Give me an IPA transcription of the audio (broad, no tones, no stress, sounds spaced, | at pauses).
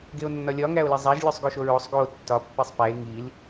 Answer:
ɡ e o̯ nː ɒ lʲ ɒ ŋ æ o̯ l e zˤ æ ʒ lʲ o sˤ ɡ o ʃ o ɹ o sˤ ɡ o tː ɒ pː e sˤ p æ e̯ ŋ i l